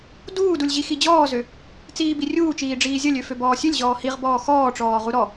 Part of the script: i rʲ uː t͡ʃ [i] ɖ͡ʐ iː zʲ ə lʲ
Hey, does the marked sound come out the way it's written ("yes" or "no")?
no